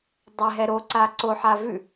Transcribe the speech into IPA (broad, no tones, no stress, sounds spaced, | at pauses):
dˤ ɛ ɦ ɛ ɾ o ǀ a ǀ o ħ a v ʉ